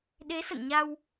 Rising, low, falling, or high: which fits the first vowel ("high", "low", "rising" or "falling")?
rising